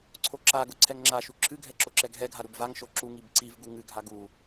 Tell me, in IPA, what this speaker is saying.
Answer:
ǀʰ o ǁ a ɡ ʊ ǀʰ ɛ ŋ ŋ͡ǁ a ʃ u ǁʰ ɨ ɡʱ ɛ ǁ o ǁ ɛ ɡ ɦ ɛ ɡʱ a ɾ u b v a ŋ ʃ o ǁ u ŋ i b ǀ i v ɡ u ŋ ɨ ɡʱ a ɡ u

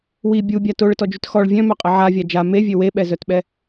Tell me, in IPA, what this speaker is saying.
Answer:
w i bʲ u bʲ a t o ɭ ə t ɔ d͡ʒ y t x ɔ ɭ vʲ œ̃ m œ qʼ ə ʕ a vʲ a d͡ʒ a m e vʲ ø w e ɓ ɛ z œ t ɓ ɛ

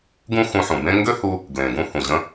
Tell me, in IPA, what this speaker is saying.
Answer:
ɡ ũ˥ x ũ˧ ħ ũ˩ b ẽ˥ ŋ ɡ ø˥ h u˧ | ɡ l ẽ˩ ɡ ũ˧ h ũ˩ ʑ ə̃˧

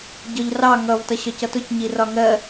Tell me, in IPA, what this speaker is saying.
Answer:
ɟ ɒ ʎ r ɑ ŋ ʌ v t ʌ ɕ ɒ c ʌ t ʊ c ɲ i r ɒ ŋ ɜ

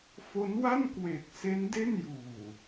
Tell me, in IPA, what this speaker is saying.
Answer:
f o˦˥ n w a˥˩ n k w e˨˩ k̚ s e˦˥ n d e˥˩ n j uː˨˩

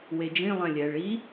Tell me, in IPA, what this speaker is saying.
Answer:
w e d͡ʒ ĩ lˠ ɛ̃ lʲ ɛ ɭ i

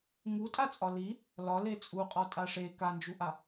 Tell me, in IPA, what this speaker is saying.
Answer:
ŋ u tʼ a t͡sʼ ɒ l i | l ɒ l e t͡sʼ u qʼ ɒ tʼ a ʂ e k a n d͡ʒ u ʔ a

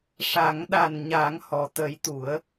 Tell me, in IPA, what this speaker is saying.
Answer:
ʂ a˨˩˦ ŋ ɗ a˨˩ n ɲ a˨˩˦ ŋ h ɔ˨˩ t̪ ə˨˩˦ j t̪ u˨˩˦ ə̯

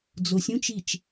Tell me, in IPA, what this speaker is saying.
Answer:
d͡z o sʲ ũ t͡ʃ i t͡ʃ

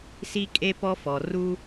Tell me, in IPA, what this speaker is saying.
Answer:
s i˦ kʼ e˦ p ɔ˦ f ɔ˨ r u˦

